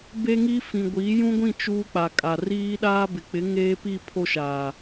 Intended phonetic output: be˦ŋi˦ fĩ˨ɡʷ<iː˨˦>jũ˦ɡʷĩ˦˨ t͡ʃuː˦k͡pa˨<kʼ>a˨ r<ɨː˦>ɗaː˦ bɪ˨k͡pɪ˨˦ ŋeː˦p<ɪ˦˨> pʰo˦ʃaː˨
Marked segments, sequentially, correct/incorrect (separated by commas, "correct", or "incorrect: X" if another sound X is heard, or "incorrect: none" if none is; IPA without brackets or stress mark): correct, correct, incorrect: iː˦, incorrect: i˦˨